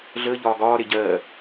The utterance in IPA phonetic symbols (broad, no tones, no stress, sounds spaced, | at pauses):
ɮ əː ʎ ɒː ɡ ɒː ɾ e ɟ ɜː